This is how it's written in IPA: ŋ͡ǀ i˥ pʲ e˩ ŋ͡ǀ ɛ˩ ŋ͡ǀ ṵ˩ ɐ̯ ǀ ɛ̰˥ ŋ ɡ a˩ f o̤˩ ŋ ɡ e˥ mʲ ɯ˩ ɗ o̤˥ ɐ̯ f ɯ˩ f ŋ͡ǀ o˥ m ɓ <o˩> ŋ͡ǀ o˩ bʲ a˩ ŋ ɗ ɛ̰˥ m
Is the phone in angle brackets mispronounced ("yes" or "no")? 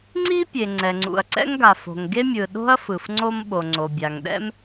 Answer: no